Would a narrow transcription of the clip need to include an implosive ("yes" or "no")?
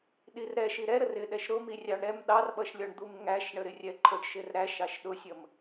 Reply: yes